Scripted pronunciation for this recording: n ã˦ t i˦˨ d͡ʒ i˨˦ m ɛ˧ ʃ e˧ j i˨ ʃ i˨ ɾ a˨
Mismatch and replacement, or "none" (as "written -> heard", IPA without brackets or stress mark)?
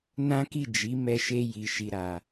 t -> k